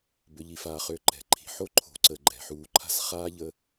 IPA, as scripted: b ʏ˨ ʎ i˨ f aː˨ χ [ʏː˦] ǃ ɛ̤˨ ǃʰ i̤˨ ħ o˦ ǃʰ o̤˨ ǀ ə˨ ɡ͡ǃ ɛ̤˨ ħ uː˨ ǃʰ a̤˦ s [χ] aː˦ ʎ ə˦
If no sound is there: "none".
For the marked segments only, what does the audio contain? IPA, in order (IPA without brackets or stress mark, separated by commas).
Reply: ʏː˨, χ